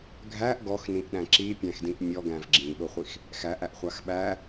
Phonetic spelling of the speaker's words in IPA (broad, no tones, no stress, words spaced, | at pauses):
ɡʱæʔ ɡɔxnĩʔɗæ̃ ǁipʲæ̃xdĩʔ mʲɔɡæ̃v ɡ͡ǁĩɓʊχʷix | xæʔæʔχʷax ɓæ